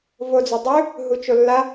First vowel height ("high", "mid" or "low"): mid